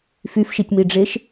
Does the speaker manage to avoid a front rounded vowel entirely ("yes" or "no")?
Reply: no